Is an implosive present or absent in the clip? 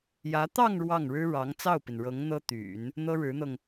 absent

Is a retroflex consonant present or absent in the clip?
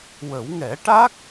present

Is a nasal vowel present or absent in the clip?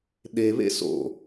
absent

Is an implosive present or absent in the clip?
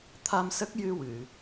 absent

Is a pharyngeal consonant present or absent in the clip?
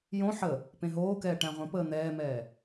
present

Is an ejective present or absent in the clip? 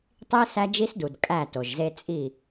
present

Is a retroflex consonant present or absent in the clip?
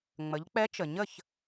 absent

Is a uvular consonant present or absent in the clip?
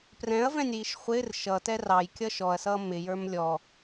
present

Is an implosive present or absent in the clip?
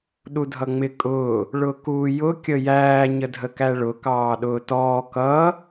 present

